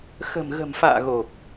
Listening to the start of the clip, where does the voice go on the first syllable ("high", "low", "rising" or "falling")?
low